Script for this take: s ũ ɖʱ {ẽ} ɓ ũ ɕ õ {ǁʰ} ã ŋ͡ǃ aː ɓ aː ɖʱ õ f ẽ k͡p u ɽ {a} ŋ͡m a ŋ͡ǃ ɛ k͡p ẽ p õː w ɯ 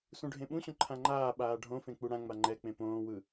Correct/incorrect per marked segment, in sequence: correct, incorrect, incorrect

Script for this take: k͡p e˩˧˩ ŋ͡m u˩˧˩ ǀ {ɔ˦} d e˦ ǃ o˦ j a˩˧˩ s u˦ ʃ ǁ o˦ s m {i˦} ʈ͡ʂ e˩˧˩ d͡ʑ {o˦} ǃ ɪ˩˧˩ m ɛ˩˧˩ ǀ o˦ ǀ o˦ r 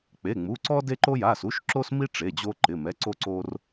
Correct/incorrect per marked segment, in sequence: correct, correct, correct

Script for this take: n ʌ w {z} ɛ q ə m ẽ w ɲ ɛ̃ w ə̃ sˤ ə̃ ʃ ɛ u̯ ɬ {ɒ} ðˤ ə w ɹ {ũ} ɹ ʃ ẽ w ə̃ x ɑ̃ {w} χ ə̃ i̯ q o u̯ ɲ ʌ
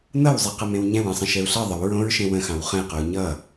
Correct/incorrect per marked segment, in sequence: incorrect, incorrect, incorrect, correct

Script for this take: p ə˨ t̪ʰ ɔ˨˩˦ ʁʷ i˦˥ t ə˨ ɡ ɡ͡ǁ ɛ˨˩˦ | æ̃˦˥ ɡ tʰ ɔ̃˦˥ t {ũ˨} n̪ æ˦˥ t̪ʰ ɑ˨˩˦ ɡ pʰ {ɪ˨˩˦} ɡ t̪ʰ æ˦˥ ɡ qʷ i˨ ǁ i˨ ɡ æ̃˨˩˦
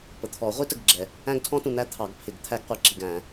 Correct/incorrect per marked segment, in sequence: correct, correct

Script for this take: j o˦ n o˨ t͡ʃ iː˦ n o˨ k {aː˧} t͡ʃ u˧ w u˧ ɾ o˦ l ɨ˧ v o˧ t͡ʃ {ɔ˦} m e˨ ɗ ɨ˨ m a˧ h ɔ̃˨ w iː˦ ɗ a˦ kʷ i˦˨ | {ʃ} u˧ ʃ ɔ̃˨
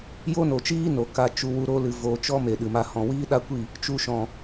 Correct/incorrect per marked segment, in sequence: incorrect, correct, incorrect

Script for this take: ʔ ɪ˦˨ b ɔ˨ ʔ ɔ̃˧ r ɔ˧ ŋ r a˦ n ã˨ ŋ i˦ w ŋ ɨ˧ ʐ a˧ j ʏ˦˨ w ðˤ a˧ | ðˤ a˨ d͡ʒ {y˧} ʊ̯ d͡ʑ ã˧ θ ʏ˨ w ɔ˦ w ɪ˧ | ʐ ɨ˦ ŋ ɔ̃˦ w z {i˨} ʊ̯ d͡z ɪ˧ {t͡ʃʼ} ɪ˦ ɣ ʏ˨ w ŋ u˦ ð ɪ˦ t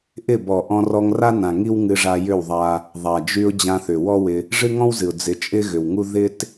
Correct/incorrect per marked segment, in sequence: correct, incorrect, correct

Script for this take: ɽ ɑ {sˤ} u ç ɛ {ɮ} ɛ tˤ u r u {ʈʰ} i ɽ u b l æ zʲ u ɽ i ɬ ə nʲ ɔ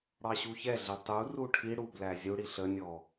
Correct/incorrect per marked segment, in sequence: incorrect, correct, correct

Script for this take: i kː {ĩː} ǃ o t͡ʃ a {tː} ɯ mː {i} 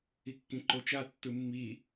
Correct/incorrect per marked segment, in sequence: incorrect, correct, correct

